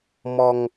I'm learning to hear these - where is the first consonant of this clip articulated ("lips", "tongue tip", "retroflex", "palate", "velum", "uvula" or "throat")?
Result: lips